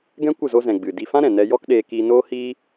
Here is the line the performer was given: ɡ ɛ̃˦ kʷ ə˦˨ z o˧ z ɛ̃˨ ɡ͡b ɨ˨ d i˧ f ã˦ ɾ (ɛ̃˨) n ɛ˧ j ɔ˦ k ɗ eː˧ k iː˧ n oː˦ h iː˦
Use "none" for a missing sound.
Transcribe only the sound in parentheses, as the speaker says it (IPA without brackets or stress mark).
ɛ̃˨